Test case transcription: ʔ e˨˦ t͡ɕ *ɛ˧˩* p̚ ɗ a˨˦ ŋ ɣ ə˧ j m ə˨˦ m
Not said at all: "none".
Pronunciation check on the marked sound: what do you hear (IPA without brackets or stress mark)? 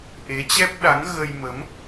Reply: ɛ˦˥